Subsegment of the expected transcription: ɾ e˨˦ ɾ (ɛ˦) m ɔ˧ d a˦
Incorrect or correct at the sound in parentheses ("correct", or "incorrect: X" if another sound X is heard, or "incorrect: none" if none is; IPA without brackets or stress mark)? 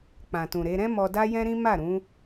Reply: incorrect: ɛ̃˦